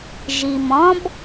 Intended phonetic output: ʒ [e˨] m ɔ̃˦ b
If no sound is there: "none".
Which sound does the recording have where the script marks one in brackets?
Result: i˨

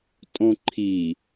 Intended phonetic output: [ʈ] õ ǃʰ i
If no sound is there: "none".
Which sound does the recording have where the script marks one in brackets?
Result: tʼ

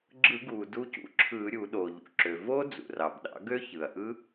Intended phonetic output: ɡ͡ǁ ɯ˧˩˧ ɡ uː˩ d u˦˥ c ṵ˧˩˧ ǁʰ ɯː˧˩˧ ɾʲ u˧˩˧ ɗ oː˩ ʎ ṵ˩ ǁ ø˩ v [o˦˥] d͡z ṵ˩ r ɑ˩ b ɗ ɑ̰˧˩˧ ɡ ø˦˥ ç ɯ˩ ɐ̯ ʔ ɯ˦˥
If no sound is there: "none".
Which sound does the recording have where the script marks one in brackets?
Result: o˦˥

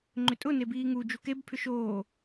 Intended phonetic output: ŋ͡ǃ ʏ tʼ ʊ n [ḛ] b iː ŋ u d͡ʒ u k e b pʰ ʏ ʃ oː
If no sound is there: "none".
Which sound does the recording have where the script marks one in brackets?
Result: e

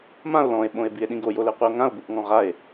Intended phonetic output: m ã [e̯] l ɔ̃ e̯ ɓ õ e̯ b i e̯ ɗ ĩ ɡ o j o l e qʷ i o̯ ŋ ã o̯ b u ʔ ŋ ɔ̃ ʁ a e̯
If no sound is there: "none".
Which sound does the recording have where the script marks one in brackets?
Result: o̯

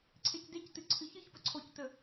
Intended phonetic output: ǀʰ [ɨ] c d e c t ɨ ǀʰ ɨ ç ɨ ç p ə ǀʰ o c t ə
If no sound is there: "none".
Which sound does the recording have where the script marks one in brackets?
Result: e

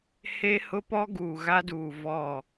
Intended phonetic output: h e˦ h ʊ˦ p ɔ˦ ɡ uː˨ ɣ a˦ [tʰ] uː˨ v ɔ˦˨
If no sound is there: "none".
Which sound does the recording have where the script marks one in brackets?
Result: d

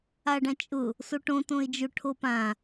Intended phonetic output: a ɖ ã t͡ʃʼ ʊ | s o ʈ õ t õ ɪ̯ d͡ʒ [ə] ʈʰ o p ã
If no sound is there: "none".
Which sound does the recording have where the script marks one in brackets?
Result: ʊ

